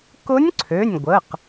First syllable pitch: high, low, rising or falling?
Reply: rising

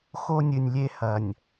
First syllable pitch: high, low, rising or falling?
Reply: high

